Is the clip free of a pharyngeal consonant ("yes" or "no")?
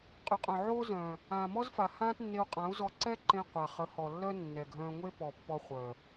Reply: no